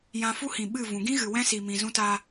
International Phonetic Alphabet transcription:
jã˧fu˦hĩ˨ ɓɨ˦˨ vũ˨ɡĩ˦ɣɨ˨ wɛ̃˦si˨mĩ˨ zũ˧taː˧

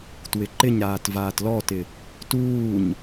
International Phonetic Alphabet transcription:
twɪǃɪɲɾaːt vaːtlɔtɪ | tuːɲ

